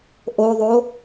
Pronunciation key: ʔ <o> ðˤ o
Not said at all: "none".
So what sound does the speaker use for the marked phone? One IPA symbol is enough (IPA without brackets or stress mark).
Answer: o